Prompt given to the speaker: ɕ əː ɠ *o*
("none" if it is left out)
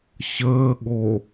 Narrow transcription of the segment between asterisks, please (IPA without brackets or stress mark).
o